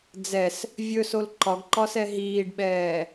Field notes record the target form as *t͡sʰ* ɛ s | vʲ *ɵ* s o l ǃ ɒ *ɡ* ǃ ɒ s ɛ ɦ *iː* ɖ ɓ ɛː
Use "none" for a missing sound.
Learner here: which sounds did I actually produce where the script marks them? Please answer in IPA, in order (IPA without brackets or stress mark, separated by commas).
d͡z, ɵ, ɡ, iː